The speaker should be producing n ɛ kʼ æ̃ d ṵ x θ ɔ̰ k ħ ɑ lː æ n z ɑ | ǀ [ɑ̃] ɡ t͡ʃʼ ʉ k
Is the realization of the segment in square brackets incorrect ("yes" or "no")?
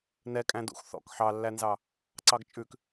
yes